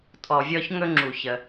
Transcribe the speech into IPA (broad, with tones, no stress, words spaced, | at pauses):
tʼɔ˩vʲɔ˧ç ŋɵ˥ŋ͡ǁu˩çə˩